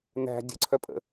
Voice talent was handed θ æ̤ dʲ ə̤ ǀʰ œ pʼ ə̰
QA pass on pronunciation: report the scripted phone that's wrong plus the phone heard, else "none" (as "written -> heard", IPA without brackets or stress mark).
θ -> n̪